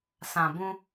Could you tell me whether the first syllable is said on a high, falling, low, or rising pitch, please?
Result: low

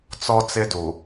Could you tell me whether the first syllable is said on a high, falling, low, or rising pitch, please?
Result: high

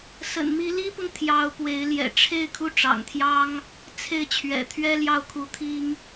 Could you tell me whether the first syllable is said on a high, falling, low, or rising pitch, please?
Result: low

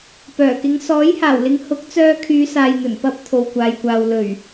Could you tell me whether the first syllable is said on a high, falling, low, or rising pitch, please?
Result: low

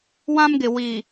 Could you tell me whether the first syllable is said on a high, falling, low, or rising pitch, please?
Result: high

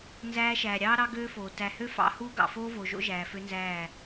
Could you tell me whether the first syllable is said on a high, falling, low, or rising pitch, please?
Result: high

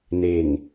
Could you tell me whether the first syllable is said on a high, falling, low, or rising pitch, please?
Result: low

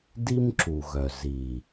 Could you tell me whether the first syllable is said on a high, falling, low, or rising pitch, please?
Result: high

